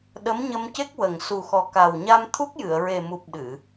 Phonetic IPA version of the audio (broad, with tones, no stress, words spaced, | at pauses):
ɗə˧˥mɲə˧mce˦˥k̚ wə˨˩ŋ su˨˩xɔ˨˩ka˨˩wɲa˧m t̪ʰu˦˥k̚jɨ˨˩˨ə̯ɹe˨˩mu˨˩p̚ ɗɨ˨˩˨